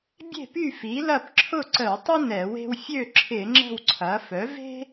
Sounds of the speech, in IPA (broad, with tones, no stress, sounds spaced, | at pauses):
bʲ e̤˥˨ p y˥˨ f i˩˥ l ɐ˥˨ p ǁʰ ʊ˥˨ ǀ ə˧˩˧ w tˤ ə˥ n ɛ˧˩˧ w e̤˥ w fʲ ø˥˨ ǁʰ ɪ˧˩˧ ŋ͡ǁ ə̤˥˨ w ǀʰ ɐ˩˥ f œ˩˥ v e̤˥